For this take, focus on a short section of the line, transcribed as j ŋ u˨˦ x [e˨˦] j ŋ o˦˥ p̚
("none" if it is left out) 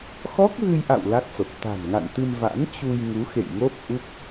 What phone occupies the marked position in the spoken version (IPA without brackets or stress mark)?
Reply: ḛ˧˨